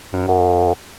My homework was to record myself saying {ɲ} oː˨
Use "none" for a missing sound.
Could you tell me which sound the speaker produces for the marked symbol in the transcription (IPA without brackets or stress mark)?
ŋ